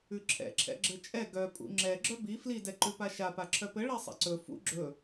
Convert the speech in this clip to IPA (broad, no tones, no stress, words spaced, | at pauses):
ʉǁʰɛ̰ǁʰɛ̰ ɡ͡ǁɘt͡ʃʼɛ ɡœ pʼṵŋ͡ǁɛ ɡ͡ǁœbi flidɛ ǃʉpaʃa paǁʰœpɘ ɭɛsˤɛ̰ǀɵ fṵ ɡ͡ǁɵ